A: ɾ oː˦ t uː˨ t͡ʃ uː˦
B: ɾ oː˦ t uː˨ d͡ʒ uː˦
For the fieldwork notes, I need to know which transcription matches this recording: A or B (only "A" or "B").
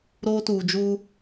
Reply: B